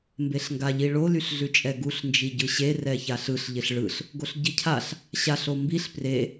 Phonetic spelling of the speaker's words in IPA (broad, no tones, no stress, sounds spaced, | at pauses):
m b e ɬ ŋ ɡ a ʎ i ɭ o l y ɬ ɮ ʉ t͡ʃʼ ɛ ɡ u ɬ n d͡ʒ i ɟ ɯ ɕ e r ɛ ç a ɬ ɯ ɬ ʎ ɪ ɬ ɭ ɯ ɬ | ɡ o ɬ ɟ i cʰ a ɬ | ɕ a ɬ o m b i ɬ p r e